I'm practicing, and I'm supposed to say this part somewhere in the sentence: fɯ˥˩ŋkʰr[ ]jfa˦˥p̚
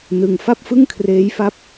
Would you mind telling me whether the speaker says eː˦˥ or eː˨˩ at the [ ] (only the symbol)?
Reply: eː˦˥